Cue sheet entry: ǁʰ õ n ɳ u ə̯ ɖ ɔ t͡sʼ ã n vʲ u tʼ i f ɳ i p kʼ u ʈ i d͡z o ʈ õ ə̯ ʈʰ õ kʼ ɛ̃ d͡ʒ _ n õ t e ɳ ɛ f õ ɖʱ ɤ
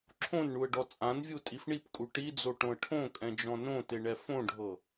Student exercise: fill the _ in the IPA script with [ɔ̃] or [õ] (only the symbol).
ɔ̃